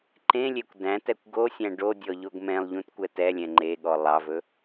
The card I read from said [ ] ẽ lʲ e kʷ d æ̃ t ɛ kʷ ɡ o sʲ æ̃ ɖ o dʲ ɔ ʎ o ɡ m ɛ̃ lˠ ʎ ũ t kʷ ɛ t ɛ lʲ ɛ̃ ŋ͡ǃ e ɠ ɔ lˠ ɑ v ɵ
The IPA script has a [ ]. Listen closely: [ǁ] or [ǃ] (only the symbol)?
ǃ